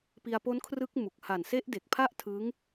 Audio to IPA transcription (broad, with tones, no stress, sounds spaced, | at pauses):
p i˧ a̯ p o˦˥ n kʰ r ɯ˦˥ k̚ m u˨˩ k̚ h a˨˩ n s e˦˥ ʔ d e˨˩ k̚ pʰ a˥˩ ʔ tʰ ɯ˦˥ ŋ